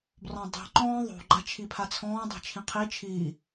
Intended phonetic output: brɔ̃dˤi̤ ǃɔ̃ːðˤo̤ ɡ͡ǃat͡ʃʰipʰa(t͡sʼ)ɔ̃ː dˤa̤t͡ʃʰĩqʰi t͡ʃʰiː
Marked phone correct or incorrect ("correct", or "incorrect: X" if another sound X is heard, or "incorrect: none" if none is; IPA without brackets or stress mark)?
incorrect: t͡sʰ